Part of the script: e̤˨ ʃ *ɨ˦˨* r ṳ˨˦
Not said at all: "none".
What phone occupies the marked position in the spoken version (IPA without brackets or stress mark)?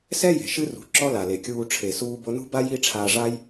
ɨ˦